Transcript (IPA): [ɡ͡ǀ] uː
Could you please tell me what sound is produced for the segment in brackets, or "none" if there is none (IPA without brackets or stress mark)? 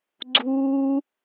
ɡ͡ǀ